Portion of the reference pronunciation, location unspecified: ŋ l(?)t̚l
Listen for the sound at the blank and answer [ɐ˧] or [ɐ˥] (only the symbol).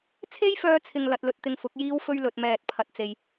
ɐ˧